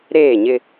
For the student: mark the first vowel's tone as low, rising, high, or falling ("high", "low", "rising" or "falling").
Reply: falling